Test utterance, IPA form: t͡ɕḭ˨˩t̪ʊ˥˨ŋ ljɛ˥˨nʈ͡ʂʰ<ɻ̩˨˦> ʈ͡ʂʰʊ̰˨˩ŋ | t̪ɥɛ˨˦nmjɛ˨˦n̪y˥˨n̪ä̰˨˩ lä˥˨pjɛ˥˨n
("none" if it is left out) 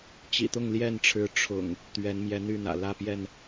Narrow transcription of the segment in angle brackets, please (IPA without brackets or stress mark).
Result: ɻ̩˨˦